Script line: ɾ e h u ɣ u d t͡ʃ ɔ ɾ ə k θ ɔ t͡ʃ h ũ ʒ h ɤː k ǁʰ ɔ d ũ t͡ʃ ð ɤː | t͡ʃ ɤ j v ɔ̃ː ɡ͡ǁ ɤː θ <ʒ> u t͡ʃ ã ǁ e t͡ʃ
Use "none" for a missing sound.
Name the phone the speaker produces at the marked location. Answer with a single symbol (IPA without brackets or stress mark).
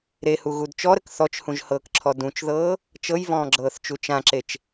t͡ʃ